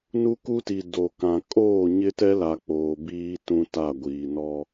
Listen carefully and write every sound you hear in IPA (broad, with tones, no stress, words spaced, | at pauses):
nu˦ku˦ti˨ do˨kã˨ kʼoː˦˨ɲɪ˦tɛ˦la˨ k͡poː˨biː˦ tũ˦ta˦˨ɡʷiː˨ nɔ˦